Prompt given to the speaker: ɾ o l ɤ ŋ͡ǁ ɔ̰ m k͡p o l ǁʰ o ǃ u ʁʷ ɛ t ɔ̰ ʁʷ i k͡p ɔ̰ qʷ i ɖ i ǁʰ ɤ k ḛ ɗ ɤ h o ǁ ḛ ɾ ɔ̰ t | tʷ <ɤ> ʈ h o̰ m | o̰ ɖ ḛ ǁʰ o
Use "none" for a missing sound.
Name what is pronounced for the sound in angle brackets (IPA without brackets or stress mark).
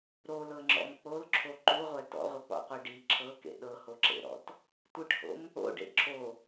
ɯ